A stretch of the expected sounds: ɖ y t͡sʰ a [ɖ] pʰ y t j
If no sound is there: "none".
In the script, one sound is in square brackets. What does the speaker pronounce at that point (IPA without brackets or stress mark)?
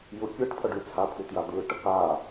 none